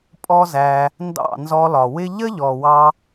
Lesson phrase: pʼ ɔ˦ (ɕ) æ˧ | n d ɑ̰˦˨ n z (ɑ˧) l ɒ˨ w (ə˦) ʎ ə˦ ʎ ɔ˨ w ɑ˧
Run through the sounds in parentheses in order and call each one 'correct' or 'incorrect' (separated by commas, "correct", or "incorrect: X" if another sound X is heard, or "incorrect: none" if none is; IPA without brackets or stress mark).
incorrect: z, incorrect: ɔ˧, incorrect: ɪ˦